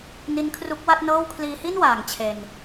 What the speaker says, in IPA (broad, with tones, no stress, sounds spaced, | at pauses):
n i˧ n kʰ r u˦˥ k̚ w a˥˩ t̚ n ɤː˥˩ w kʰ l iː˧ h i˥˩ n w aː˨˩ ŋ t͡ɕʰ e˧ n